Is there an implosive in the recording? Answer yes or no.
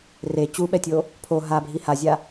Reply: yes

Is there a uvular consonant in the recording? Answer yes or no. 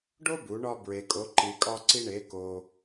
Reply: no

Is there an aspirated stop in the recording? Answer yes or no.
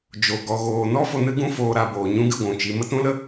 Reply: no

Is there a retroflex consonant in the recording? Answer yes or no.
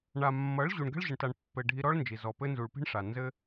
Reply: yes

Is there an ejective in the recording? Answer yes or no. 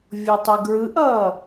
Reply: no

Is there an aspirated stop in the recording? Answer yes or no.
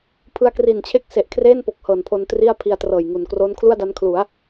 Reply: yes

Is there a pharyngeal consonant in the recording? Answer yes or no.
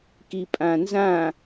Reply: no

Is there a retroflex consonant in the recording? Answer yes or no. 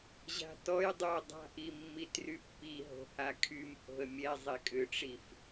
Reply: yes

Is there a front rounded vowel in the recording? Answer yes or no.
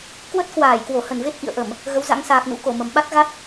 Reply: no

